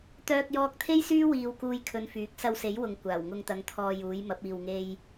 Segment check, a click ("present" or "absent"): absent